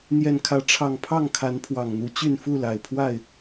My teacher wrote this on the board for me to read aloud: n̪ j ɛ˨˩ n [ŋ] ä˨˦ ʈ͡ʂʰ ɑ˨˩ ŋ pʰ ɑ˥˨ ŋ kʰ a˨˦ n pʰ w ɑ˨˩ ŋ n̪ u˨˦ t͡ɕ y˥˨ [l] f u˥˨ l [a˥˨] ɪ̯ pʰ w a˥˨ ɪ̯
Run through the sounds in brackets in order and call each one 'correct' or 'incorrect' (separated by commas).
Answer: incorrect, incorrect, incorrect